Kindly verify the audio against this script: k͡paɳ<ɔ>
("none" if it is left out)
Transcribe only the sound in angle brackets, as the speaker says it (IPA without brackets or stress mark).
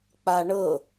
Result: ɤ